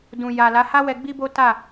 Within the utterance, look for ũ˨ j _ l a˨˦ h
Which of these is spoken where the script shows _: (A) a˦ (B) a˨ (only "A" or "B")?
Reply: B